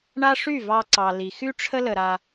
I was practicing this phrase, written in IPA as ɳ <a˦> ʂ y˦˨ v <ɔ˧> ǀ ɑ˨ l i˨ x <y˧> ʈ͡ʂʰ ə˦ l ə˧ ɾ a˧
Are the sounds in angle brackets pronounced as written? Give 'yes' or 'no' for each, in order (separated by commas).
yes, no, no